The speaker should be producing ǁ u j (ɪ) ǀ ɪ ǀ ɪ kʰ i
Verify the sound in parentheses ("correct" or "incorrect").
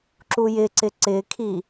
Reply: correct